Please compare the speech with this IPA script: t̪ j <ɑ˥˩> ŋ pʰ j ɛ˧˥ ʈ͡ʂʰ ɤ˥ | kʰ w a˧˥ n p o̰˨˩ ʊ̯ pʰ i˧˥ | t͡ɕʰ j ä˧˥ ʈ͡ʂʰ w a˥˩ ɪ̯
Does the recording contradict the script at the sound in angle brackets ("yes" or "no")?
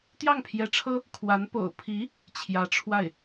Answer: no